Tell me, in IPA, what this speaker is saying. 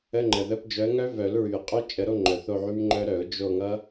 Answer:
ə˧˥˧ ŋ͡ǃ ə˨˩ ð ə˧˥˧ p d͡ʒ œ˨˦ ə̯ ŋ œ˦˥ v œ˨˩˦ l ɹ y˨˩ ə̯ qʼ œ˦˥ t͡ʃʼ ə˨˩˦ ɾ o˧˥˧ ŋ͡ǃ œ˨˩ θ o˦˨ ʕ y˦˥ m ŋ͡ǃ œ˦˥ ɾ œ˨˩˦ ʊ̯ d͡ʒ o˦˨ ŋ ʌ˦˥

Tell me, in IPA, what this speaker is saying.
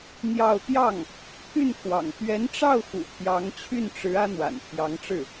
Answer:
n̪ j ɑ˥˧ ʊ̯ t̪ j ɑ˥˩ ŋ | pʰ y˥˩ n kʰ w ɑ̰˨˩ ŋ t̪ ɥ ɛ˧˥ n ʈ͡ʂ ɑ˥˩ ʊ̯ x ṵ˨˩ t̪ʰ j ɑ˧˥ ŋ t͡ɕʰ y˥˩ n ʈ͡ʂ ɻ̩˧˥ ä˥ n̪ w a̰˨˩ n pʰ j ɑ˧˥ ŋ ʈ͡ʂ ɻ̩˥˩

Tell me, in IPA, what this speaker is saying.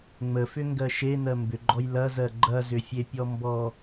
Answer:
ŋ͡m ə f ʏ ŋ ɡ ɜ ʃ e n ɜ m b ʏ ɡ͡ǃ ɔ j l ɐ z ɜ ɡ͡ǃ ɐ z ʏ fʲ e pʲ ɔ m b ɔ

